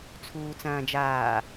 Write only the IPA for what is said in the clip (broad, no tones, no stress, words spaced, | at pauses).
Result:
t͡sʰuːt͡sɐ̃ːd͡ʒaː